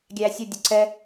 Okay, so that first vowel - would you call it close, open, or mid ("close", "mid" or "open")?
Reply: open